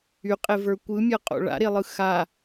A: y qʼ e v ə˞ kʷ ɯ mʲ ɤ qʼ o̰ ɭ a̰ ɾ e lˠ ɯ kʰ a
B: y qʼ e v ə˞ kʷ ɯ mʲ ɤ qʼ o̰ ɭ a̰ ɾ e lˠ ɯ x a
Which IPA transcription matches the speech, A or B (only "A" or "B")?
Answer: B